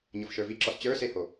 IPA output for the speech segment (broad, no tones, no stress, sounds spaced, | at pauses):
ɲ ɤ f ʃ ə˞ v i ǁ ɔ s t͡ɕ ə˞ s e h o